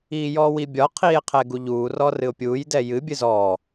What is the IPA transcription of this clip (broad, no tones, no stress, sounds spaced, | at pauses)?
iː j ɔː w i bʲ ɒ qʰ iː e̯ qʰ ɛ ɡ u ʎ uː r ɔː r ɨ o̯ pʲ uː j d ɛ j ɨ bʲ ɨ z ɔː